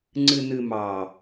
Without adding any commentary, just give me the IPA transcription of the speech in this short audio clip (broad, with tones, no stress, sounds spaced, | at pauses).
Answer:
ŋ͡ǀ ɨ˨ n ɨ˨ m ɑ˨